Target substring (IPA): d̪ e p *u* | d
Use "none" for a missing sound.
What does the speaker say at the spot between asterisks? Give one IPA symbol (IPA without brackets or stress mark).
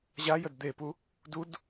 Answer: u